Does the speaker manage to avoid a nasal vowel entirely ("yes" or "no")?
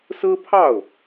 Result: yes